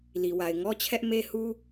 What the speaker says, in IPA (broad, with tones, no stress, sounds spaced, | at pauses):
l i˨ w a˨ ɪ̯ ŋ ɔ˦ t͡ɕʰ ɛ˦ ʔ m e˦ h u˦